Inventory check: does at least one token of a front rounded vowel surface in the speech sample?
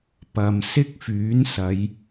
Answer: yes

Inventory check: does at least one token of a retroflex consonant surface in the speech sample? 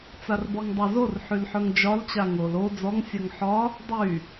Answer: no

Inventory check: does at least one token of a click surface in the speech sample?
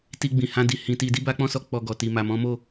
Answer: no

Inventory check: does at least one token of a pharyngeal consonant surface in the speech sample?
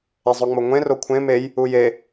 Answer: no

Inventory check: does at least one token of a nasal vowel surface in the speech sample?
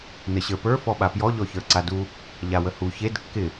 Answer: no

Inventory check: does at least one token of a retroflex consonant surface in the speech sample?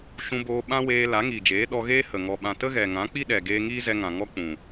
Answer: no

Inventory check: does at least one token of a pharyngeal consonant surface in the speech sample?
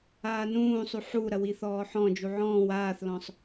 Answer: yes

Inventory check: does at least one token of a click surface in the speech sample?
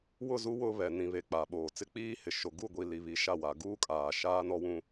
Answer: no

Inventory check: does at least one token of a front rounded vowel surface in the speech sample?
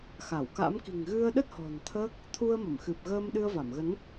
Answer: no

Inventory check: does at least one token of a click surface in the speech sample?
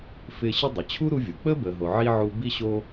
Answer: no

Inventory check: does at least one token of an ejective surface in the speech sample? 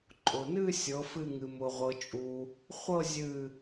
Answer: yes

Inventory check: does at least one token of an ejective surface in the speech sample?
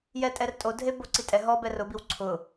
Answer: yes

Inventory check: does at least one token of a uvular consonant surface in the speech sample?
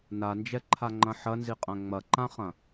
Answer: yes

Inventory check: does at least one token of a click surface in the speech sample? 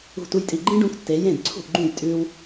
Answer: yes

